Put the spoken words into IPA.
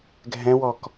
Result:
ɡʱ ɛ̃ w ɔ k

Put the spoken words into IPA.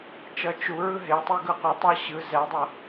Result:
t͡ʃ ʌ t͡ʃ u ɹ ɯ ɦ e tˤ e ɡ ɯ qʷ ʌ tˤ a ɕ ɯ z ɛ dˤ ʌ

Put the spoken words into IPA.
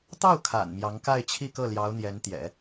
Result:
t̪ ɑ˥˩ ʊ̯ kʰ a̰˨˩ n m j ɑ˧˥ ŋ k a˥˧ ɪ̯ t͡ɕʰ i˥˧ k ɤ˥˩ l j ɑ˧˥ ʊ̯ n̪ j ɛ˧˥ n t̪ j ɛ̰˨˩˦

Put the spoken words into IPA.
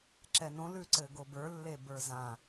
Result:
ǁ ɛ n õ l ʉ ǀ ɘ ɡ o b ə˞ lː e b ə˞ z ã

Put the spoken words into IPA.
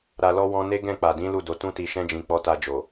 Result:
ɾ a˨ l ɔ˧ w ɔ̃˧ n e˦ ɡ ɛ̃˦˨ k͡p a˨ d ĩ˨˦ l u˦˨ d o˨˦ t ũ˦ t i˧ ʃ ɛ̃˦ d͡ʒ ĩ˧ k͡p ɔ˧ t a˧ d͡ʒ o˨

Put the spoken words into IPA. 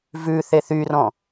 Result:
v ʉ θ e θ y r ɔ̃

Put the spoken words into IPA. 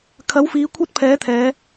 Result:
kʰ ɐ˨˥ w f iː˨˧ kʷʰ ɐ˥ t̚ pʰ ɛː˨˥ t̪ʰ ɛː˨˧

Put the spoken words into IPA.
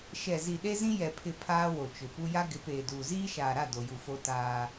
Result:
ʃ ɛ˨ z i˨ ɗ e˦ z ĩ˦ j ɛ˨ pʰ ɪ˨ pʰ aː˦ w o˨ t͡ʃ ʊ˨ p u˦ j a˦ ɡ ɪ˨˦ p eː˨ d uː˨ z iː˦ ʃ aː˨ ɾ a˦˨ d o˨ j u˨ f o˦ t aː˦

